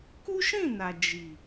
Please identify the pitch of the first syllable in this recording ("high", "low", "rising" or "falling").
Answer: high